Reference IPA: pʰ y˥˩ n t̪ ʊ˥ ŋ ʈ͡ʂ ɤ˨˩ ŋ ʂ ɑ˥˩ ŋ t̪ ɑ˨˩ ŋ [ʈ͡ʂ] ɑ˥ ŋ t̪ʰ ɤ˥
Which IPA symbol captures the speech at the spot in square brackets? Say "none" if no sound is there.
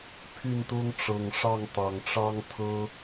ʈ͡ʂ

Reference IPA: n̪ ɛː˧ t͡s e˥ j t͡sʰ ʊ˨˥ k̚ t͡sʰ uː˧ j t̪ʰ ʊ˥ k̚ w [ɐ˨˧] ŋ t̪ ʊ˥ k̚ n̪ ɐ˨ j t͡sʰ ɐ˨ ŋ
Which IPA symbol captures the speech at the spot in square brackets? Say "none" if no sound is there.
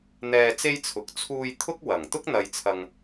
ɐ˨˩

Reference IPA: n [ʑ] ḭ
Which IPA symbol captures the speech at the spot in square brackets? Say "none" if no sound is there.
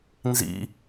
z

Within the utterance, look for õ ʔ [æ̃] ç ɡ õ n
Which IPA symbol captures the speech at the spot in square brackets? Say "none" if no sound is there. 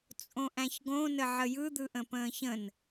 æ̃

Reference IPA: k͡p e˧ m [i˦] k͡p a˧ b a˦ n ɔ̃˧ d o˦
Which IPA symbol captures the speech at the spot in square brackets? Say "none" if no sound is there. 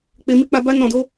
i˦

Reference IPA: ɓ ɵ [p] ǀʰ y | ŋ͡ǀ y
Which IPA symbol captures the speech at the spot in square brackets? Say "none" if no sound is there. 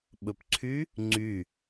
p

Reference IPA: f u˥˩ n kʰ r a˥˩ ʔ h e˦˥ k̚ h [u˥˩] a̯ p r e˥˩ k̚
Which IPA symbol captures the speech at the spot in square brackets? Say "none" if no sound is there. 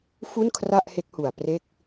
u˨˩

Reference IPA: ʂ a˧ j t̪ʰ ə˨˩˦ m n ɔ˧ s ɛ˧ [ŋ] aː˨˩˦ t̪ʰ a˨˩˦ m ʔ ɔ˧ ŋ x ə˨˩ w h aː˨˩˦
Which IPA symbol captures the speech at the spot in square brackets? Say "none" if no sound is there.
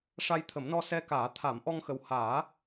k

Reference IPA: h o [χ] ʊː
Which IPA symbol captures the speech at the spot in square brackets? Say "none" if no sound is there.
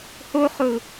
χ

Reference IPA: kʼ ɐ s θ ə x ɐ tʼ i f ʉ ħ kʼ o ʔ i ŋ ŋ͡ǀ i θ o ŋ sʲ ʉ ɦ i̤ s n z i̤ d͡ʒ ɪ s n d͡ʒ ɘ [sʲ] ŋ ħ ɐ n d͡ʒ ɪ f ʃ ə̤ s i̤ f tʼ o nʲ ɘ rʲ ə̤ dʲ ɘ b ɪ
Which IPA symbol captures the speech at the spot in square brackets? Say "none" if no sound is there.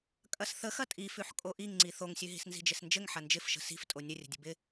none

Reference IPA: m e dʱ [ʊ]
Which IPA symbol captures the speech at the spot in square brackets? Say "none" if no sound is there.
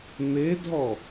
ɔ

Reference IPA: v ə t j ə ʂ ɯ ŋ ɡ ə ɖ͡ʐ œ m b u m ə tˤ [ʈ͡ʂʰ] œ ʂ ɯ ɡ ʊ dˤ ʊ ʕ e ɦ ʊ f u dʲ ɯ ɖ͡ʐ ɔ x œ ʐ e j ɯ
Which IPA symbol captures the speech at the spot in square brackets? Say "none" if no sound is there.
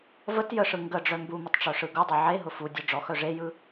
ʈ͡ʂ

